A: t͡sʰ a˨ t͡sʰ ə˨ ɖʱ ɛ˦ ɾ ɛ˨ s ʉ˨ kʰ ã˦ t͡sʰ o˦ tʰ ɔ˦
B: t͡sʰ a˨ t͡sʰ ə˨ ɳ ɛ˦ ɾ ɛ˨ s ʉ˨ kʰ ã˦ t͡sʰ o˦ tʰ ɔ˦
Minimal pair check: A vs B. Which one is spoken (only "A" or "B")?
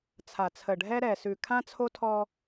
A